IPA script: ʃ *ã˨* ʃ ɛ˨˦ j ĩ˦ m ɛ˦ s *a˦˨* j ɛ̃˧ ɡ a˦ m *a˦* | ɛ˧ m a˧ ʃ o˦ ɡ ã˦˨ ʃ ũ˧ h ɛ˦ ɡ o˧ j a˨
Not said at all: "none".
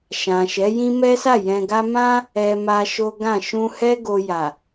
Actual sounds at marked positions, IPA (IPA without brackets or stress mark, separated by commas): ã˨, a˦˨, ã˦